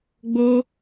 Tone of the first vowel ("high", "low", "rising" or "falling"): high